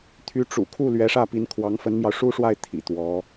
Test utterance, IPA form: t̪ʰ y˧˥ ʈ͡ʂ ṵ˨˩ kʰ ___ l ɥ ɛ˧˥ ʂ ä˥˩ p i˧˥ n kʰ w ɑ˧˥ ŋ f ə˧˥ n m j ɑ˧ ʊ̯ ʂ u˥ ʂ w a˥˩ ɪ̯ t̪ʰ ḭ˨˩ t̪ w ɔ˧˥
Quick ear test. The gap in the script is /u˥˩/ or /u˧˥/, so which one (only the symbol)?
u˥˩